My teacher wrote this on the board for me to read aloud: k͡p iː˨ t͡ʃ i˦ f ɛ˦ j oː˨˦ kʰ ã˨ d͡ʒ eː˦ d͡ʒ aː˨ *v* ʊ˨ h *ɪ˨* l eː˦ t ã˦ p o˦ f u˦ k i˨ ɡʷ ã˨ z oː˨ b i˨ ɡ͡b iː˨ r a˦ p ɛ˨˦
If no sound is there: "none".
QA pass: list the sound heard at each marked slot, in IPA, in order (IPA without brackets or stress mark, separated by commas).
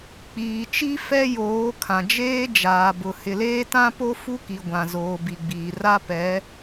b, ɪ˨